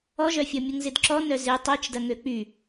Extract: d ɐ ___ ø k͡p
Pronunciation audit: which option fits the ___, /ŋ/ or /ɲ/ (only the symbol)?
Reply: ŋ